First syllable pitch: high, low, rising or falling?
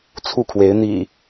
falling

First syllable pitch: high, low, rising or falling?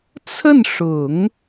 falling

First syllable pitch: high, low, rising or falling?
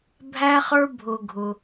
high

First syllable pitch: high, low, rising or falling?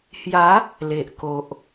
rising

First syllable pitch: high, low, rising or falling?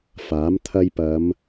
rising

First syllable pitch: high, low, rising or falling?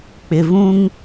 low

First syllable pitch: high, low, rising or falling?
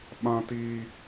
high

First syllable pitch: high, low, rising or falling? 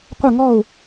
falling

